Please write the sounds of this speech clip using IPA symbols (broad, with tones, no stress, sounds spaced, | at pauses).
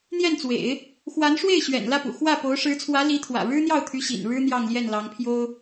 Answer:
n̪ j ɛ˥˩ n t͡s w ḛ˨˩˦ ɪ̯ | x w a˧˥ n ʂ w e˥˩ ɪ̯ ɕ ɥ ɛ̰˨˩ n l ä˥˩ p ṵ˨˩ x w ä˥˩ p o˧˥ ʊ̯ ʂ ɻ̩˧˥ t͡sʰ w ä˧˥ l i˧˥ t̪ʰ w ä̰˨˩ ɻ ɻ̩˥ n̪ j ɑ˥˩ ʊ̯ t̪ʰ y˧˥ ɕ ḭ˨˩ n ɻ ɻ̩˥ n̪ j ɑ˥˧ ŋ l j ɛ˥˩ n l ɑ˧˥ ŋ pʰ j o˥ ʊ̯